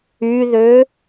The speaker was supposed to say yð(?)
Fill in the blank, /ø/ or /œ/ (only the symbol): ø